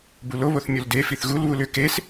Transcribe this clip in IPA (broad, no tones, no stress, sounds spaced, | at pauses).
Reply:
b u l o β o θ mʲ o l d e f i θ ɣ u l β u l ʏ k e s